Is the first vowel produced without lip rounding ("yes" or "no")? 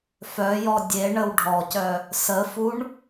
no